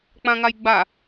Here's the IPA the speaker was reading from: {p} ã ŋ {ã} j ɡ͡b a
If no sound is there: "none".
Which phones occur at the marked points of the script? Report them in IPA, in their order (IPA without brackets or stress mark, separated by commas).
k͡p, a